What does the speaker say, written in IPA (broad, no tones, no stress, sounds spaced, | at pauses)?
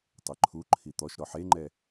tˤ ɪ ǃʰ u ǃʰ i t̪ ɔ ʃ ɾ ɔ ħ e ŋ͡ǃ ɛ